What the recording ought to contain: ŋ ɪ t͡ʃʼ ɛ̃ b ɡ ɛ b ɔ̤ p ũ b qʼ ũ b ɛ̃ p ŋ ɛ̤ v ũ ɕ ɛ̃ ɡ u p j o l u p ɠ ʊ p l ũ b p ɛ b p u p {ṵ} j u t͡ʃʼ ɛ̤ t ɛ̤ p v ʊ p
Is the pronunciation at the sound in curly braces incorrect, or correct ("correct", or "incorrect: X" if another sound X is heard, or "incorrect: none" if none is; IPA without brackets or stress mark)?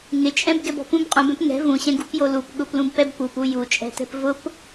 incorrect: u